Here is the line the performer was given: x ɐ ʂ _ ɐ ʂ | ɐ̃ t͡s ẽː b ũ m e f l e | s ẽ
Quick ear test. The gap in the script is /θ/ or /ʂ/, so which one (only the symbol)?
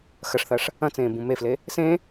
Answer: θ